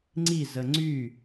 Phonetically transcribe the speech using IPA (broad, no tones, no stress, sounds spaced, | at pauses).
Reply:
ŋ͡ǀ i z ə ŋ͡ǀ y